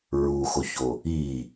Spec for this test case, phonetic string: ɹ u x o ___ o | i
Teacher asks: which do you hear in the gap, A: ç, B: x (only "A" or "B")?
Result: A